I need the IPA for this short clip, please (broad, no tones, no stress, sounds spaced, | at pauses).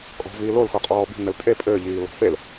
kʼ ɔ̤ v iː l o l x o qʼ ɔː b i̤ n ɘ l tʼ e pʼ ɘː ʎ iː l ɔ̤ f e l